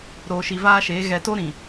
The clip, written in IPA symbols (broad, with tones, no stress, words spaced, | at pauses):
ɾoː˨ʃi˨vaː˦ʃeː˨˦ ɣɛ˨to˦ ɾĩ˨